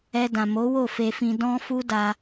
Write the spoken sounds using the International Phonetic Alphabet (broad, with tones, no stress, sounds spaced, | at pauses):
ɛ˧ d ã˨ m o˨˦ w o˦˨ f e˧ f ĩ˧ d ɔ̃˧ f u˦ d a˧